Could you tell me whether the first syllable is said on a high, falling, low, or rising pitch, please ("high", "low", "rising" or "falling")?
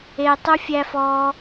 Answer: high